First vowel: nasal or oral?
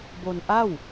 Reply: oral